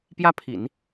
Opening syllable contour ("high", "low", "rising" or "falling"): high